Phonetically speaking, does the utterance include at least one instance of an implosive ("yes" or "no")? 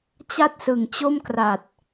no